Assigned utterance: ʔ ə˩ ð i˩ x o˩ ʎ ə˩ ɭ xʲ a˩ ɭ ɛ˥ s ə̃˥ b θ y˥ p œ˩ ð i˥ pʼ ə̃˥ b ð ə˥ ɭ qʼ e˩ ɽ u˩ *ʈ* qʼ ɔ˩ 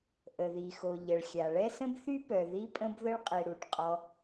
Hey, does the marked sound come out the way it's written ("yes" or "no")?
yes